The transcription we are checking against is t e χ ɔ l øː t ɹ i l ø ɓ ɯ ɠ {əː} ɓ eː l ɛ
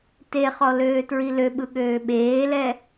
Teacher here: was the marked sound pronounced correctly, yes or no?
no